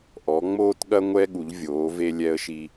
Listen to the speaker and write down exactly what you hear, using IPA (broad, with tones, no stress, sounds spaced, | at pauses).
ʔ ɔ˩˧ ŋ͡m oː˧ t ɠ ɐ˧ ŋʷ ɛ˧ ɠ u˩˧ ʎ vʲ oː˩˧ v e˧ lʲ ɛ˧ ə̯ ʃ i˧